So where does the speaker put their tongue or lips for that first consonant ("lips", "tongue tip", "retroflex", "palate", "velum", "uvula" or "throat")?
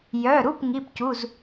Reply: palate